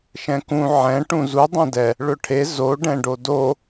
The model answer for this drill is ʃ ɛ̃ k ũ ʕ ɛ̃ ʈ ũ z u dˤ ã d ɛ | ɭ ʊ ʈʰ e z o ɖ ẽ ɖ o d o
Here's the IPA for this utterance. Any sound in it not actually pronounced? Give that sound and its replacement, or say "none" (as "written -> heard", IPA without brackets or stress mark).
ẽ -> ɛ̃